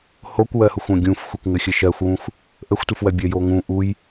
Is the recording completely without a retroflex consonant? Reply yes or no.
yes